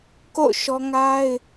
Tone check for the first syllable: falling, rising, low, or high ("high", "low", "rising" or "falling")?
falling